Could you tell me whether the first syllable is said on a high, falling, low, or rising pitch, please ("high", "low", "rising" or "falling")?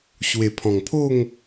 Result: low